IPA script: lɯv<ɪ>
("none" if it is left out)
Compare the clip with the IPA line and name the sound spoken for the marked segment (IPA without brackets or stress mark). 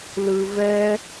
ɛ